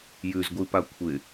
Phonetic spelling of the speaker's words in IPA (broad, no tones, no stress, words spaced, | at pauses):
jʉzɡʷipa kʷʰɪ